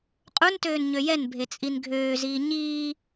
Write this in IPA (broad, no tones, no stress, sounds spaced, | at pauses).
qʼ u n t øː n ɲ ø j ɛ n bʱ e t͡sʼ i n ɡʱ øː z iː ɲ iː